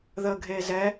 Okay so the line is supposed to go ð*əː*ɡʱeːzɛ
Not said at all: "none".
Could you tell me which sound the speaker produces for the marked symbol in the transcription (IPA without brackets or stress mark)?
əː